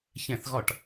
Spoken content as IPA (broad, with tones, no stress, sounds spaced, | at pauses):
ç ɛ̃˧˩˧ θ ɣ ɒ˧˩˧ ʈ